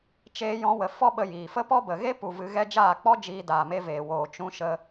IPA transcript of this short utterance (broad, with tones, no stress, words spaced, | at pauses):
t͡ʃeː˧jɔ̃˧wə˨ fɔ˦ ɓə˧jiː˨ fə˦pɔ˦bə˨ ɣe˦pu˨ vɨ˧ ɣɛ˧ d͡ʒaː˦˨k͡pɔ˦ d͡ʒiː˧ daː˨me˧veː˨woː˨ t͡ʃũ˧ ʃə˧